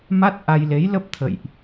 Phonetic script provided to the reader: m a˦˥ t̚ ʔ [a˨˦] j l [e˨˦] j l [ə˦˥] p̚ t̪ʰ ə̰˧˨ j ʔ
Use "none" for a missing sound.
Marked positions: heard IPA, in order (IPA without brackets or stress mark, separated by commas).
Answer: a˧, e˨˦, ə˦˥